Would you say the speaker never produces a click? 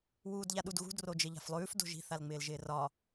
yes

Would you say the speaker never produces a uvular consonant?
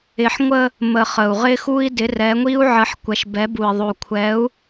no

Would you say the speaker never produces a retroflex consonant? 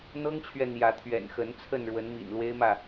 no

